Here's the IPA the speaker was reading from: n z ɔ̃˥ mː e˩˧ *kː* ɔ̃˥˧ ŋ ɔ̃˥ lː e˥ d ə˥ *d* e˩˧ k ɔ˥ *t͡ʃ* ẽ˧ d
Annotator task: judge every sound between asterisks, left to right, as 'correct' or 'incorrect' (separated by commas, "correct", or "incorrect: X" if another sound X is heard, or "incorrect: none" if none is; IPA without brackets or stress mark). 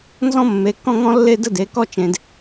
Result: correct, correct, correct